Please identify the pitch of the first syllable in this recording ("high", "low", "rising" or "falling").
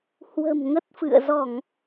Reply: low